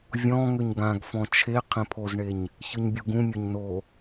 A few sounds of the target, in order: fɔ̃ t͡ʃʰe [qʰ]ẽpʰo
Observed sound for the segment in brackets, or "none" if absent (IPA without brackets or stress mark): qʰ